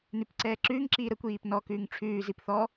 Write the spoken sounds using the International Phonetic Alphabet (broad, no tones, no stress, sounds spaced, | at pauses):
n ʉ p ǀ ɛː ǁ ʉː ŋ ǁ iː ɾ ə kʷ iː p n ɔ k ʉː ŋ ʈ͡ʂʰ ʉː z i p θ ɔː